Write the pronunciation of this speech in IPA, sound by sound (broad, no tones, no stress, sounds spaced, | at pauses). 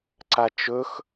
ǀ a t͡ʃ ɵ x